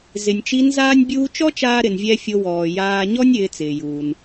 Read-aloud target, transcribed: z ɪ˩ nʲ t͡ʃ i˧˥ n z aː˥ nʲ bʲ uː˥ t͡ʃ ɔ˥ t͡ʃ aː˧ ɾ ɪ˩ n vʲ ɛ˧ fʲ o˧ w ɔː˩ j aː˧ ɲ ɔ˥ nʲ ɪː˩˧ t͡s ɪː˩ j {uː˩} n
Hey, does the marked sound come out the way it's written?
yes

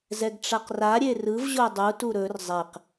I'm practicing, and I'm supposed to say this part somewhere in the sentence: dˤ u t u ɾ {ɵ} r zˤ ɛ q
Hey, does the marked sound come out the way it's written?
yes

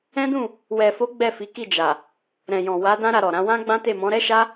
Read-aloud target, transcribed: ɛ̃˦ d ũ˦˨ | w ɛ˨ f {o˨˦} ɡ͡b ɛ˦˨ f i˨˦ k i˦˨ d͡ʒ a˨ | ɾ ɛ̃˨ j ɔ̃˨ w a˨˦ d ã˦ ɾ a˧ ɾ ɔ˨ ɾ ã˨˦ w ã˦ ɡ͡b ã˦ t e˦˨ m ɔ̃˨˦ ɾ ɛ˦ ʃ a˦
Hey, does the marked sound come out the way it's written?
yes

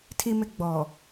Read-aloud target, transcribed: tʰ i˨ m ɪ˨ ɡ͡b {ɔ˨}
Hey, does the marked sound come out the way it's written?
yes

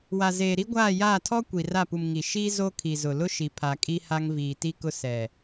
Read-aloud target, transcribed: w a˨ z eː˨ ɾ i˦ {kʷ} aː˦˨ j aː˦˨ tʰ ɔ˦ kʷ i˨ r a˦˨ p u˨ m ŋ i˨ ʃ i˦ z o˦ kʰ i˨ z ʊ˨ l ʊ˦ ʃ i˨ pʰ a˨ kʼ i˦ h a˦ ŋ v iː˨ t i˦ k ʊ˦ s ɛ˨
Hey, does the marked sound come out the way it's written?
no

